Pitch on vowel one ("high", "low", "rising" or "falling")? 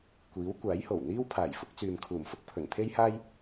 rising